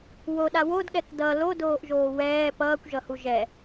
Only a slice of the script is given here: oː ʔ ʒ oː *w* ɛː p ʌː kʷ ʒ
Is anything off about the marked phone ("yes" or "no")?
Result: no